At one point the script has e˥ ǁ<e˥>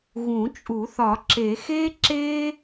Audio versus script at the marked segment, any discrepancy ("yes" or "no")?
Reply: no